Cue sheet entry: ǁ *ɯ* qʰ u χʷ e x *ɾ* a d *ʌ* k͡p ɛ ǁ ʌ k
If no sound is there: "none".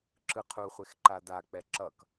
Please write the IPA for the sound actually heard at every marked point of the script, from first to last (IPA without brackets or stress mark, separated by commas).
ɯ, ǃ, a